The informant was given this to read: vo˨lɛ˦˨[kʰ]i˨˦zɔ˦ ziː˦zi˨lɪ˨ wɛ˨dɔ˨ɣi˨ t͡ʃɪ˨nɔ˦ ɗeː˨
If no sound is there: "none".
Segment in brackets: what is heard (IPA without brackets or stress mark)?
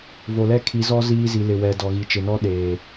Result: kʰ